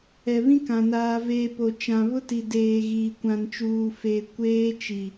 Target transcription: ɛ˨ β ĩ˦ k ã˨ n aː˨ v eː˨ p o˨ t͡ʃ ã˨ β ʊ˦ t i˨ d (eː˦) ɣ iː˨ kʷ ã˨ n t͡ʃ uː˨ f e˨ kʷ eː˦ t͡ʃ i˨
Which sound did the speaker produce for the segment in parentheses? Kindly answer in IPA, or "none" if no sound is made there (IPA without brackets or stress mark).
eː˨